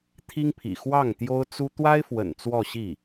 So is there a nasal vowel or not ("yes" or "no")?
no